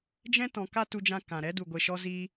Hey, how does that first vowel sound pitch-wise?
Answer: high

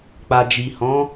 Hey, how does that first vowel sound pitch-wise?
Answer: low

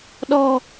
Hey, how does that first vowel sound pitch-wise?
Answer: low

